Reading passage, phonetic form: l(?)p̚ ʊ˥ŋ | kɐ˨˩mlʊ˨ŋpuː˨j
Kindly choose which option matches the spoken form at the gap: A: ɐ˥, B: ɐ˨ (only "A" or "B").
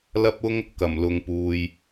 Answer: A